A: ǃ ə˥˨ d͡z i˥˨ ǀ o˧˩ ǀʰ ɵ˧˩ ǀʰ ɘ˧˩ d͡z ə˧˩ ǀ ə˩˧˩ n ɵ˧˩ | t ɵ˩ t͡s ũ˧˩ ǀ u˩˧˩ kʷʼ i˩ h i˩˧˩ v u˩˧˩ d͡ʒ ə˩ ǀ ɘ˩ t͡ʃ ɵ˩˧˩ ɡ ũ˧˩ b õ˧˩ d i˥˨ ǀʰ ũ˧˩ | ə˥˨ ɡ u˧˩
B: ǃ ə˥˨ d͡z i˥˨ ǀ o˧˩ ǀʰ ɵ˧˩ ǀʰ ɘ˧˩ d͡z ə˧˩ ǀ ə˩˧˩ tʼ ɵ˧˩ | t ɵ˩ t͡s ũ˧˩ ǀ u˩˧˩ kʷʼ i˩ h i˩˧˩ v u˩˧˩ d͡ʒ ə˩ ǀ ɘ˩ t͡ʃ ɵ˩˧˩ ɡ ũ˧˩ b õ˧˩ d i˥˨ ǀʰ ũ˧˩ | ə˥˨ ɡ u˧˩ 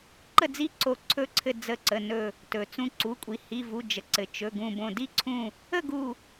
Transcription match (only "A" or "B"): A